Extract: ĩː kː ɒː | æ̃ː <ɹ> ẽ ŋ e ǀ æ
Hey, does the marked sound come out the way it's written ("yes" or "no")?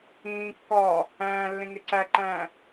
no